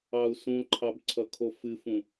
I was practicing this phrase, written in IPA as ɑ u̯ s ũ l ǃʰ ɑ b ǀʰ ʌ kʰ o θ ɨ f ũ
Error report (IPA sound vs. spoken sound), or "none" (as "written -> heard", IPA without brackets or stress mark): θ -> f